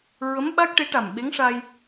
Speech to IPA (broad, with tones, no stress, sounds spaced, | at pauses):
ɹ ə˧˥ m ɓ a˦˥ k̚ ʈ e˧˥ ʈ a˨˩ m ɓ e˧˥ ŋ ʂ a˧ j